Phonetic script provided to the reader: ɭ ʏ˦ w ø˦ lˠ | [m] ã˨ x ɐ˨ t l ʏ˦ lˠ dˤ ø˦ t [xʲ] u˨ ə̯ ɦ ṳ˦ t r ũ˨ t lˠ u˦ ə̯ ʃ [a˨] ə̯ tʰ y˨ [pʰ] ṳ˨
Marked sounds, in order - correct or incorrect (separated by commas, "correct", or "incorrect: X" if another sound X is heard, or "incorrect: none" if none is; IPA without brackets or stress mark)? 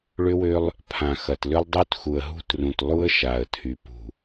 incorrect: pʰ, incorrect: x, correct, incorrect: p